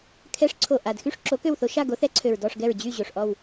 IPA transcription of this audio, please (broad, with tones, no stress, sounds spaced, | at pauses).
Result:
kʰ ɛ˨˥ ʂ ǀʰ o˨˩ ʔ a˨˩ d x y˥˨ ʂ ǁ o˨˥ k ø˥˨ w θ o˦ ʃ a˥˨ ɡ o˨˥ θ ɛ˨˥ ǀʰ ø˨˩ ɹ d ɔ˥˨ ʂ ɡ ɛ˥˨ ɹ d͡ʑ y˥˨ ʑ o˨˩ ʂ ʔ ɔ˥˨ w